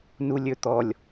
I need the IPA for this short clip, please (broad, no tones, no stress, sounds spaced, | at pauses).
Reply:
n u lʲ ɵ t̪ ɔ lʲ